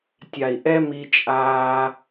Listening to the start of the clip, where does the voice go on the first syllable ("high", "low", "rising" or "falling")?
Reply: low